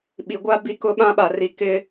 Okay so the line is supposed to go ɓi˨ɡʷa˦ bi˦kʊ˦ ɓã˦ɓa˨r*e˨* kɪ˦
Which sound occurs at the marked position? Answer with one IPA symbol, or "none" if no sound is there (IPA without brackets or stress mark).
i˨